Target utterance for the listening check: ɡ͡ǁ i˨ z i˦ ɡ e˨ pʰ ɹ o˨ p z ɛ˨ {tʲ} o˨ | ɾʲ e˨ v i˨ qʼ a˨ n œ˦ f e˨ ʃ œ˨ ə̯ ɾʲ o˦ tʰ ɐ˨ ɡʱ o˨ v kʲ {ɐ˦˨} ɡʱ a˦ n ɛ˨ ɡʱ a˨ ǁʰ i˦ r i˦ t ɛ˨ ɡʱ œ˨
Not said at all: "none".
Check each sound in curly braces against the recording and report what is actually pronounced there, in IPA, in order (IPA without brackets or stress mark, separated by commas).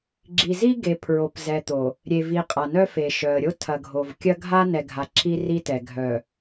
t̪, ɐ˦